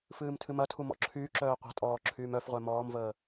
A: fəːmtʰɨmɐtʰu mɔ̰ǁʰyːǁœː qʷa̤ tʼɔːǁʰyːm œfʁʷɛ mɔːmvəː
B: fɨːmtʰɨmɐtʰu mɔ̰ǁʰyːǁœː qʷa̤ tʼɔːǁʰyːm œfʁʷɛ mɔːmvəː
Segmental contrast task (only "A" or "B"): B